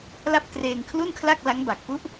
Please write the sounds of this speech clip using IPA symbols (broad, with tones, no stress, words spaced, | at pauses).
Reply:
la˥˩p̚treː˧ŋ kʰlu˥˩nkʰla˥˩k̚la˦˥ŋ ba˨˩k̚pu˥˩ʔ